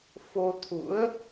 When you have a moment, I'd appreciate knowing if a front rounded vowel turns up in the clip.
no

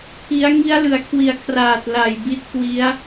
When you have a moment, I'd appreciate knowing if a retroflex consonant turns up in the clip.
no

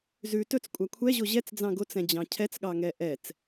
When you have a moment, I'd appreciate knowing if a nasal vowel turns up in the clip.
yes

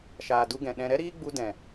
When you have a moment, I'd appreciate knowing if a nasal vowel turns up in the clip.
yes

